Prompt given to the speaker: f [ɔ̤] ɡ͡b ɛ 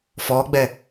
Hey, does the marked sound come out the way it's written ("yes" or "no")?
no